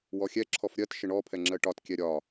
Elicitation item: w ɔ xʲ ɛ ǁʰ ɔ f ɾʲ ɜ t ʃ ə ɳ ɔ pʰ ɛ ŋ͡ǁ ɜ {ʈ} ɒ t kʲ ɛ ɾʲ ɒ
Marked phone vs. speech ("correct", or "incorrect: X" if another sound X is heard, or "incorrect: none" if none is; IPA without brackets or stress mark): correct